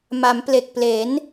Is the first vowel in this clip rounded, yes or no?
no